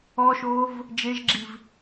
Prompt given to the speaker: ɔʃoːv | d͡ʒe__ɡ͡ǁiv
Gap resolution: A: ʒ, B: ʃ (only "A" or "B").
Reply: A